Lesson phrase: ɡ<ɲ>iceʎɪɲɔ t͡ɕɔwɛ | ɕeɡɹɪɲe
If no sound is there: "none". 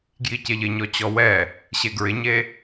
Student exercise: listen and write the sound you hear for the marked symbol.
j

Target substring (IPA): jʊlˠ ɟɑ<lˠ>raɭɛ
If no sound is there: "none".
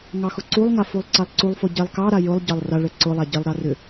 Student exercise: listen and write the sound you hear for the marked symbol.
lˠ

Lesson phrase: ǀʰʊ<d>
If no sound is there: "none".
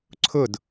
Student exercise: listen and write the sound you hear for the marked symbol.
d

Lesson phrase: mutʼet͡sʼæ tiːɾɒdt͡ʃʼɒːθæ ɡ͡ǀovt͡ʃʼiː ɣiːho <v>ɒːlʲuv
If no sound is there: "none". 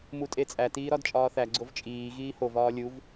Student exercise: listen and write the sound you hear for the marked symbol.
v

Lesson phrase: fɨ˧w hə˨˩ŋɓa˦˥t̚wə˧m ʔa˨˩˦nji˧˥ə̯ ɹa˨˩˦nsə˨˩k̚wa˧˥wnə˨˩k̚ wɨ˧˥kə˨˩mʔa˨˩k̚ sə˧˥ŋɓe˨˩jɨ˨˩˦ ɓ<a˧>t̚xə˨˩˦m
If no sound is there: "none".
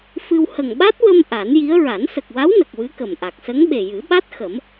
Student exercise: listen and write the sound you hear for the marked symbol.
a˦˥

